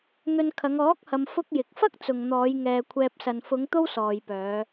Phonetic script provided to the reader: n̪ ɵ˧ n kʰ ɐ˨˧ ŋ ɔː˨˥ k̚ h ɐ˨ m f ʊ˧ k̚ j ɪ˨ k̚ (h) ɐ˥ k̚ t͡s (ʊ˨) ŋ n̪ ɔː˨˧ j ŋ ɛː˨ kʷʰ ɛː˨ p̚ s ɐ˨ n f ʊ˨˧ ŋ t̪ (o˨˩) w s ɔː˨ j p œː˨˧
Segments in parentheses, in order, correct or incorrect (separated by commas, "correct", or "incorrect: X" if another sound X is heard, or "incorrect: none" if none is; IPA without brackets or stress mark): incorrect: f, correct, incorrect: o˥